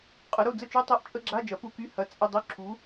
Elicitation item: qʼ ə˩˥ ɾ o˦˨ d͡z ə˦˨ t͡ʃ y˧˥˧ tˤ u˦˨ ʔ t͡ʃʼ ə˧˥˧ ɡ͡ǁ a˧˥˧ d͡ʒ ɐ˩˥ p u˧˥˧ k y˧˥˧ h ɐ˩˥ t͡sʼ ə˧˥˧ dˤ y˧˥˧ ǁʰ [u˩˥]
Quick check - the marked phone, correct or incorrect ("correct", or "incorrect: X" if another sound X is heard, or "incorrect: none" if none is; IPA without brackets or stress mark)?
correct